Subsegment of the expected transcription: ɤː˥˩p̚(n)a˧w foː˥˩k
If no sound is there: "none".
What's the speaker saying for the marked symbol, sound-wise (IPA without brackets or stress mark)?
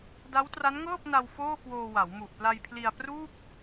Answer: n